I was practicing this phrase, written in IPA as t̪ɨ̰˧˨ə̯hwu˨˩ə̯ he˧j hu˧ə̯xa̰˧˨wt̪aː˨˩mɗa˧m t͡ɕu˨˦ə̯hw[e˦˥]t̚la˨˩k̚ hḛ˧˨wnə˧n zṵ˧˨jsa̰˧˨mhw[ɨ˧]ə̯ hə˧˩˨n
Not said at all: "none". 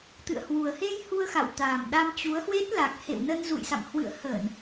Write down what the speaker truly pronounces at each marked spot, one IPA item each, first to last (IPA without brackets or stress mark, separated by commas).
e˦˥, ɨ̰˧˨